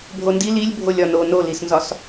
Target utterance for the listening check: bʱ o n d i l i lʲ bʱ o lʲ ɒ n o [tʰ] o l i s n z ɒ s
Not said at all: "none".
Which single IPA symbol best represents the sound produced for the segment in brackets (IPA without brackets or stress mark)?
n